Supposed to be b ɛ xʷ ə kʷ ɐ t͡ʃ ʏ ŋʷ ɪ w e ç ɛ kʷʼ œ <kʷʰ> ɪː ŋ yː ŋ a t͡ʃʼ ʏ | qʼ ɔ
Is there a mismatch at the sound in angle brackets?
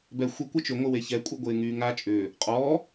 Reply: yes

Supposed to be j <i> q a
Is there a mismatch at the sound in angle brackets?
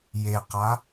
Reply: yes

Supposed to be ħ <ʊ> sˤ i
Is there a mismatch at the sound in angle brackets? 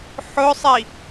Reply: no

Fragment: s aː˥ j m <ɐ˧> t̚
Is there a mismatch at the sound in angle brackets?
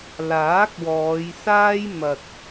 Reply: no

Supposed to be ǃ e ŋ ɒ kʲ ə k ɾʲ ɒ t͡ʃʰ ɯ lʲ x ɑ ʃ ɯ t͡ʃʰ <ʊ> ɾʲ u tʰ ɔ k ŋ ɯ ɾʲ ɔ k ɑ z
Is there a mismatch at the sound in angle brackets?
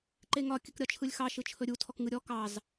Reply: yes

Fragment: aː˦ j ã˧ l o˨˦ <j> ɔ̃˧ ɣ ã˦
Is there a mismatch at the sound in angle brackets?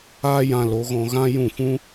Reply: yes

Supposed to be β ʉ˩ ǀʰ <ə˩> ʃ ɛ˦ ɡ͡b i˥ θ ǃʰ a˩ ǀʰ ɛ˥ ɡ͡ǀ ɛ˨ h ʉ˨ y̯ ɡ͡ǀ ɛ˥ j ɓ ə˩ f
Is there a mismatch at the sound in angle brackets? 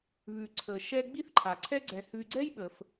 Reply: no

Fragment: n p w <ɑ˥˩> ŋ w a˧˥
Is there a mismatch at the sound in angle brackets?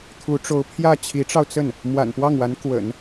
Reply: no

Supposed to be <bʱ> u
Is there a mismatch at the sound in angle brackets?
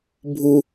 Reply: no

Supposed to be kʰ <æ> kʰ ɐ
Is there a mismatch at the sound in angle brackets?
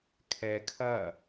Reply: yes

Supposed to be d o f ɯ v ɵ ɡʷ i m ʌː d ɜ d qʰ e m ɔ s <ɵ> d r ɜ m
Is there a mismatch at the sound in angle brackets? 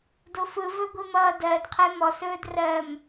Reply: yes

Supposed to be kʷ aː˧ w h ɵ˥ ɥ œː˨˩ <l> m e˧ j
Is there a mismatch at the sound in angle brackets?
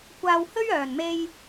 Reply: yes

